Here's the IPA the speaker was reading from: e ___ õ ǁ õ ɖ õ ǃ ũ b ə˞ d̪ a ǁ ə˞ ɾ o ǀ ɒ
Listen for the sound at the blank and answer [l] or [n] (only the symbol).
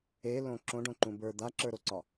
l